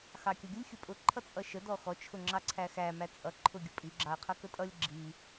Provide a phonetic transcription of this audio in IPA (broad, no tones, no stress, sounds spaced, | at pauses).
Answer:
x ɑ kʲ ʌ ɡʲ ʊ lʲ xʲ ʊ pʼ ʊ ǃʰ ʌ t͡sʼ ʌ ʃ ə d ɔ x ɔ t͡ʃʰ ʊ ŋ͡ǁ ɑ ǀʰ æ x æ m æ t͡sʼ ʌ ǃʰ ʊ ɡʲ ʊ pʼ i ɡ͡ǁ ɑ ɐ̯ qʰ ʌ k ə tʼ ʌ lʲ ɡ͡ǁ i